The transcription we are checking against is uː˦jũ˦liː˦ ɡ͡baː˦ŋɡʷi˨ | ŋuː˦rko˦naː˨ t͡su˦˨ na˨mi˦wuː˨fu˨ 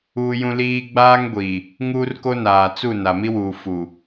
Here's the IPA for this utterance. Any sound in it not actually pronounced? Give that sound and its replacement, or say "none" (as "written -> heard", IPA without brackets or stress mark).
none